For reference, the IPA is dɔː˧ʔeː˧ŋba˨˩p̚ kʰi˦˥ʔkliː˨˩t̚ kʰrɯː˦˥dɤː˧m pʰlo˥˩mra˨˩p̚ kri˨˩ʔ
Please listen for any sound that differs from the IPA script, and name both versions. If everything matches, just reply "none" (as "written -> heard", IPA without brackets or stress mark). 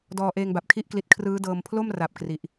iː˨˩ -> i˨˩